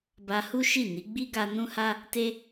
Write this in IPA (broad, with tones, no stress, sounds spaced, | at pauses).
b a˧ h u˦ ʃ i˦˨ n i˨˦ ɡ͡b i˦ ɡ a˧ n ũ˦ h a˦ | t e˦